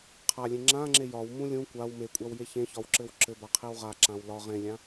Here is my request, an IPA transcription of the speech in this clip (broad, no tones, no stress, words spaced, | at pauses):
qʰalʲẽ ŋ͡ǁãŋ͡ǁe jɒwmũ lʲũ kʷaw mekʷʼawje çẽçɒwǁɘw ǁɘbaqʰew ʁaǁãw lɒ ʁẽlʲã